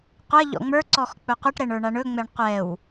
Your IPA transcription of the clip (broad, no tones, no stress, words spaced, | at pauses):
qʷɐ ʎɔ̰ŋ͡mə˞ ǀɔxk͡pɵqʷɛʈ ɾɛɳə˞ɳaɳɵ ŋ͡mɛɳqʷɛw